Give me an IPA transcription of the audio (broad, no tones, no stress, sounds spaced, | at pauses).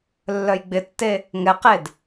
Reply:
lː œ j ɡ͡b ɪ tː e | ŋ ɛ q e d